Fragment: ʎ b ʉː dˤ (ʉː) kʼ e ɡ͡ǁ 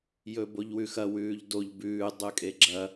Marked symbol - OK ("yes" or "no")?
no